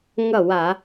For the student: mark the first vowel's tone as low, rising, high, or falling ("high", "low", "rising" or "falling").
falling